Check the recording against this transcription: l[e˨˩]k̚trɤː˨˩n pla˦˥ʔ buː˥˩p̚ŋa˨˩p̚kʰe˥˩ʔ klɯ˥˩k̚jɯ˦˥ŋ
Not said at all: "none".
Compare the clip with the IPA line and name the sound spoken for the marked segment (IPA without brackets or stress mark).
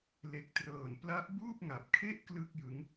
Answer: e˨˩